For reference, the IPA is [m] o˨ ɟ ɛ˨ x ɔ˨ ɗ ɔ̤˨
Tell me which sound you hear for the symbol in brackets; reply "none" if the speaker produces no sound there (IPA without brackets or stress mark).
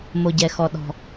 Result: m